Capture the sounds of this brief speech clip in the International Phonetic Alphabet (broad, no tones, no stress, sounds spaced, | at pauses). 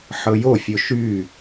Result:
ħ ɤ j o fʲ o ʃ y